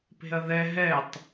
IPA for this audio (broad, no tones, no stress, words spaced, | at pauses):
pe̤ɐ̯ðɛ ɦɛtˤ